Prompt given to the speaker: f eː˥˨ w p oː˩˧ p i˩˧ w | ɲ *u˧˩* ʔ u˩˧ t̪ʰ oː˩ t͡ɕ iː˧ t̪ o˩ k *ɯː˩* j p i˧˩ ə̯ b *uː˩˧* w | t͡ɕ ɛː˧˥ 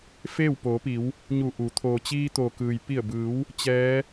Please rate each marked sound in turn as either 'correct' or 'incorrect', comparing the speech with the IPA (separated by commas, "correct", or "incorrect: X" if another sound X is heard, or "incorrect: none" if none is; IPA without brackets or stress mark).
correct, correct, incorrect: ɯː˩˧